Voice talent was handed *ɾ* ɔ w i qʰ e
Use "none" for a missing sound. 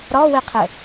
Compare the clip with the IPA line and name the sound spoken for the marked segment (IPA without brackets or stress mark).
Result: ɾ